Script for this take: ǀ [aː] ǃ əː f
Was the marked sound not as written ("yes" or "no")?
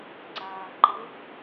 no